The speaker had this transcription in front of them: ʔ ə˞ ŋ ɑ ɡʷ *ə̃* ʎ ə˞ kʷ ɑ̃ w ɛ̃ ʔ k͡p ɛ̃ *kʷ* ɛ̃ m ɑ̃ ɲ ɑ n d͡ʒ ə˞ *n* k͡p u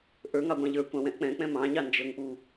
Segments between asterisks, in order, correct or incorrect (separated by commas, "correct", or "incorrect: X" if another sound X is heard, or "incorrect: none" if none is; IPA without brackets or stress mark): incorrect: ɑ̃, incorrect: k͡p, incorrect: ŋ